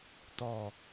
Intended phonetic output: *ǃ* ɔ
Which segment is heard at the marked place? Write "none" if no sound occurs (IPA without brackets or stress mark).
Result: t